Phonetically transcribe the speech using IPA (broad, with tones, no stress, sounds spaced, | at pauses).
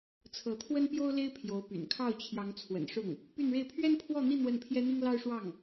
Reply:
t͡sʰ ɤ˧˥ t̪ʰ w ə˥ n p j o˥ ʊ̯ l e˥ ɪ̯ pʰ j o˧˥ ʊ̯ p y̰˨˩ n kʰ ɑ˥˩ ʊ̯ t͡ɕʰ j ɑ˧˥ ŋ t͡sʰ w ə̰˨˩ n ʂ ʊ˥˩ ŋ | p y˥˧ n ɻ e˥˩ ɪ̯ pʰ ɥ ɛ˥ n pʰ w ɔ˥˧ n̪ i˥˧ n̪ w ə˥˩ n pʰ j ɛ˥ n̪ i˥ ŋ l ɑ˥ ʊ̯ ʂ w ɑ˥˩ ŋ